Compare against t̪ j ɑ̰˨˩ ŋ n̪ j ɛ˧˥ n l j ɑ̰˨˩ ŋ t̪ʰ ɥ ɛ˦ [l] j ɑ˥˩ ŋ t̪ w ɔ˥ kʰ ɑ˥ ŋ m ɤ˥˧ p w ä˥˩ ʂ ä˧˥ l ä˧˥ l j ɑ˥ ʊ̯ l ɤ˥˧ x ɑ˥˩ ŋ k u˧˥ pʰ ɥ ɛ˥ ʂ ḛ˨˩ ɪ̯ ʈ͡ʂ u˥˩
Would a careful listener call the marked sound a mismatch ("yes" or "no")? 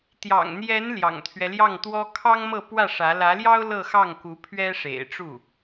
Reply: no